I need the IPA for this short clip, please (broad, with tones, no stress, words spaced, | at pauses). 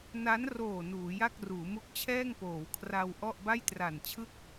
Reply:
na˦˥nroː˨˩ nuː˩˦ja˥˩k̚ruː˩˦ mu˦˥k̚t͡ɕʰɛː˥˩ŋpoː˩˦wkʰra˧w ʔɔ˥˩ʔba˥˩j tra˨˩nt͡ɕʰɯ˥˩k̚